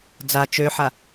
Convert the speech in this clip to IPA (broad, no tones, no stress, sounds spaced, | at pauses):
d͡z a t͡ʃ ø ħ a